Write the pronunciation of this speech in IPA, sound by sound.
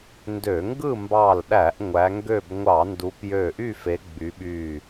n d ø˧˩˧ ŋ ɡ ɯ˥˨ m b ɑ˧˩ l ɗ æ˧˩˧ ʔ ŋʷ æ˨˦ ŋ ɡ ø˥˨ b ŋʷ ɑ˧˩˧ n d u˨˦ p j ø˧˩ ʔ y˥˨ f e˨˦ ɡ͡b y˨˦ ɓ y˧˩

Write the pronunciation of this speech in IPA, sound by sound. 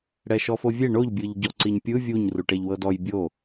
ɽ ɛ ʃ ɔ f o vʲ e ɳ o ʎ bʲ ɯ ʎ ɟ ɔ ǀ i ɲ pʲ ɯ vʲ u ɲ r u ʈ ɛ ʎ w ɤ d ɔ j bʲ o

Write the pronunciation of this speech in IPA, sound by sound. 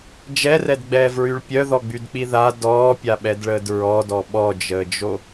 d͡ʒ ɛ r ɛ d ɡ͡b ɛː v ɹ y ɭ pʲ œ ð ɔ ɡ͡b y d k͡p i ð a d ɔː pʲ a ɓ ɛ d ɭ əː d ɹ ɔ d ɔ ɓ ɔ d͡ʒ əː d͡ʒ o

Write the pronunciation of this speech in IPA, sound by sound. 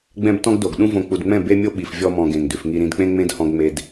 ɡ͡b ɛ̃˦ b t ɔ̃˦ ɡ d o˨ ɡ ɗ ũ˦ v õ˧ k͡p u˨ d ŋ͡m ɛ̃˦˨ b e˦ mʲ o˦ ɓ i˨ f vʲ ɔ˧ m ɔ̃˨ ɡ ẽ˨ ŋ d ʉ˨ f ŋ i˧ ɾ ĩ˧ d k͡p ẽ˦ ŋ͡m ẽ˦ d h ɔ̃˦ ɡ ŋ͡m e˦ d

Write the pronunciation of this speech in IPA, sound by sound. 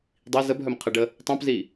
dˤ i z ə b ɦ œ m qʰ ə ɖ ə | tˤ œ̃ p z i

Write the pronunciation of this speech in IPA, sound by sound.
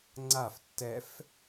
ŋ͡ǀ a f tː ɛ f

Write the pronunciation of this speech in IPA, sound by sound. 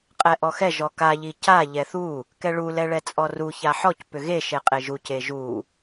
qʼ ɛ ʔ ɔ x ɛ ʒ ɔ k a ʎ i c a ʎ ɛ θ u | k ɛ ɭ u l ɛ ɭ ɛ t͡sʼ ɔ r u ç a ħ ɔ c p ʏ ɣ e ʃ e qʼ e ʒ u c e ʒ u

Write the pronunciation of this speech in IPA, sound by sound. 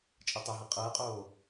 t͡ʃʼ ɤ tˤ o ɦ ɤ qʼ ɤː qʼ oː

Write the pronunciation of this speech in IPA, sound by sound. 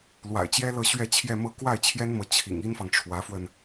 l w a̰˨˩ ɪ̯ t͡ɕ j ɛ˥ l ɤ˥˧ ɕ ɥ ɛ˥˧ t͡ɕʰ j ɛ˥˧ m ɤ˥˧ k w a˥˩ ɪ̯ t͡ɕʰ j ɛ˥ n m ɤ˧˥ t͡ɕʰ ḭ˨˩ ŋ i˥ n f ɑ˨ ŋ ʈ͡ʂʰ w ä˧˥ f w ə˧ n

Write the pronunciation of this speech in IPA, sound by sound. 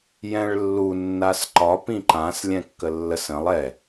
j ɛ̃ ɭ lː u nː a s ǃ ɒ p ĩ ǃ ã s lʲ ɛ̃ kː ə lː ə s ə̃ lˠ ɛ

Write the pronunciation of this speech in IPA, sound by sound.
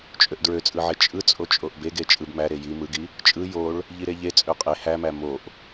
t͡ʃʼ ø ʔ d ɹ ø t͡sʼ ɯ ʕ e t͡ʃʼ ɯ t͡sʼ o t͡ʃʼ o ʔ b e ɡ e t͡ʃʼ ɯ b m æ ɾ e j i m ɯ ɡ i | t͡ʃʼ ɯ j o ɭ | ʎ i ɾ e ʎ e t͡sʼ ø qʼ e h æ m æ m o ʔ

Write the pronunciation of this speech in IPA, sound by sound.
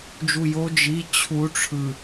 d͡ʒ u j o d͡ʒ i t͡ɕʰ u ʈ͡ʂʰ ɯ

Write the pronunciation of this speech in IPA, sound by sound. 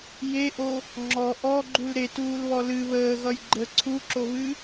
j e ʔ o | ŋ͡ǁ ɔ ʔ ɔ ɡ͡ǃ u l ɾ e t uː l β ɔ l ɨ β əː ɣ ʌ j ɡ͡ǃ ə ǀʰ u ǁ o β ɨ

